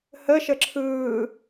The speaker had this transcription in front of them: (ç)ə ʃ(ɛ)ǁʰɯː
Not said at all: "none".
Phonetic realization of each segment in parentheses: h, ə

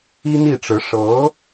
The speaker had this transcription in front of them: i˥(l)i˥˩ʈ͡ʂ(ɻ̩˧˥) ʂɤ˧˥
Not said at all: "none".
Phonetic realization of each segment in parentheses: n̪, ɻ̩˧˥

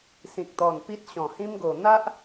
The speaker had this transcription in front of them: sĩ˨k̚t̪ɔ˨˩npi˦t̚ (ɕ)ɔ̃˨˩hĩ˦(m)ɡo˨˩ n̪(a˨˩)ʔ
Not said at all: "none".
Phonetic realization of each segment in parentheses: ɕ, m, a˦

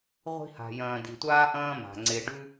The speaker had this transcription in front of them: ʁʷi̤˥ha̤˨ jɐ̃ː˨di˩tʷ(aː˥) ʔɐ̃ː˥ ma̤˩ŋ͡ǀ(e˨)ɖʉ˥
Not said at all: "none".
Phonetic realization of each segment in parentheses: aː˥, e˨

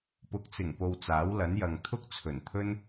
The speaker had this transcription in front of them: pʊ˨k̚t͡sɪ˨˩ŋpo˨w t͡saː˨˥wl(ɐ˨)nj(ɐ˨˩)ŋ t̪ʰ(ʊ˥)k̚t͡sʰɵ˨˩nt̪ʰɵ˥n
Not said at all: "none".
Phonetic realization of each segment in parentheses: ɐ˨˥, ɐ˨, ʊ˥

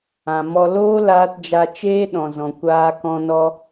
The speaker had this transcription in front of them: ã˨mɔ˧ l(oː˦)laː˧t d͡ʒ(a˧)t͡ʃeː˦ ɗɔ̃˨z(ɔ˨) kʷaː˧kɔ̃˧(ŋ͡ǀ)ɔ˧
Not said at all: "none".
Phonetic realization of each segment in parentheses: oː˦, a˧, ɔ̃˨, n

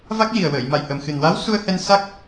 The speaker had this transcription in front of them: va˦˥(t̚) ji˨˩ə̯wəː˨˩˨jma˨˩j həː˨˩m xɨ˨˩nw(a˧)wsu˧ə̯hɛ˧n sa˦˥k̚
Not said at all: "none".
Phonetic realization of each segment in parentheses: k̚, a˧˥

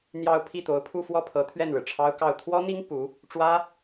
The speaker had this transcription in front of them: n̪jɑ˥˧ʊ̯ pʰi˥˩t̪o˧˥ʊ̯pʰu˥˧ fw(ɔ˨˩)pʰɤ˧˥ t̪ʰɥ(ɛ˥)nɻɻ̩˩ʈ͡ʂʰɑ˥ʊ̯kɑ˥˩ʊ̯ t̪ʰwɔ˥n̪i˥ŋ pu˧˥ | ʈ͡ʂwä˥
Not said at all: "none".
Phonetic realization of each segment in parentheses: ɔ˥˩, ɛ˥˩

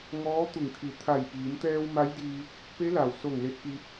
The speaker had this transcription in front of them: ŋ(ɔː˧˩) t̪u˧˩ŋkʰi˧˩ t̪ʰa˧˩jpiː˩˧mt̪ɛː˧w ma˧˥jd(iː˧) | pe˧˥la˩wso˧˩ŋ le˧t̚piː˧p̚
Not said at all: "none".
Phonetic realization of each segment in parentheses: ɔː˧˥, iː˧

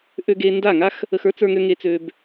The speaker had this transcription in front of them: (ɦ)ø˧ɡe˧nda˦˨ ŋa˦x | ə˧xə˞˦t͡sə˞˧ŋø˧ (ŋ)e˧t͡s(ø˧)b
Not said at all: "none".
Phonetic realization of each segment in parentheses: ʔ, ŋ, ø˧

